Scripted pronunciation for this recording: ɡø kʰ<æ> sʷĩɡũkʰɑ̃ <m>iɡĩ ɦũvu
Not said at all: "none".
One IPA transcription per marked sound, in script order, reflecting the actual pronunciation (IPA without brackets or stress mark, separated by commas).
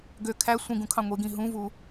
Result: æ, ŋʷ